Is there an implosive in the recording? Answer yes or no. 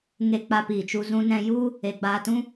no